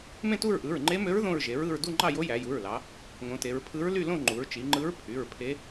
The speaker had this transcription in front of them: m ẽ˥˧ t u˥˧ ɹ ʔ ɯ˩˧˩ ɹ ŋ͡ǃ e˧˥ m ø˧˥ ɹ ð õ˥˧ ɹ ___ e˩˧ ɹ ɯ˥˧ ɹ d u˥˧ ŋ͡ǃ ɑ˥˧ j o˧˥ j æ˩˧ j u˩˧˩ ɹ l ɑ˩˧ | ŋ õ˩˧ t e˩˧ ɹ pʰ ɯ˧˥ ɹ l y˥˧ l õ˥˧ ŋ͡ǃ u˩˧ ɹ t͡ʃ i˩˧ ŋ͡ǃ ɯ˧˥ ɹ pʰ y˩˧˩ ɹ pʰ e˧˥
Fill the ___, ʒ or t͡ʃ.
ʒ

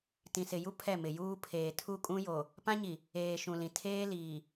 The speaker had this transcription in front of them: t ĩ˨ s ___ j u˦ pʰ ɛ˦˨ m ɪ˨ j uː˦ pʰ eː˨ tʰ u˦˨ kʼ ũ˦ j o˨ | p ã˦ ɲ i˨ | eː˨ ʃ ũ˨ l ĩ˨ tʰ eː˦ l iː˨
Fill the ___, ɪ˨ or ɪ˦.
ɪ˨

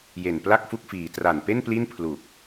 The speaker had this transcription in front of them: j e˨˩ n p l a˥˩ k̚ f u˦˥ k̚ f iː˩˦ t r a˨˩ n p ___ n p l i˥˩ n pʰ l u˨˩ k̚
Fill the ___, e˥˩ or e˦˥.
e˥˩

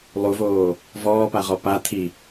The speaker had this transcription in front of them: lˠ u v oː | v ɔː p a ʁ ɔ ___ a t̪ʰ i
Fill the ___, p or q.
p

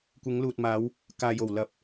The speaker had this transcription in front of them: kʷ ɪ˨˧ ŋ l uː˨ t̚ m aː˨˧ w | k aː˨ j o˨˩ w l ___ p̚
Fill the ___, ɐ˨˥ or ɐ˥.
ɐ˨˥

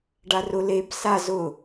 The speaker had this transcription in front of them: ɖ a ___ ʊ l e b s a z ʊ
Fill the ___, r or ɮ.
r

